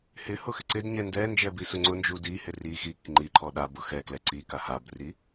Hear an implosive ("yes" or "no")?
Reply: yes